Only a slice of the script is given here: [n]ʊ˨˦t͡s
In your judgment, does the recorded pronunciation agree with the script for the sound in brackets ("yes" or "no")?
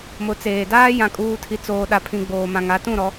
no